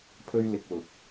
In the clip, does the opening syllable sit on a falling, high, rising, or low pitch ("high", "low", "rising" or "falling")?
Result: high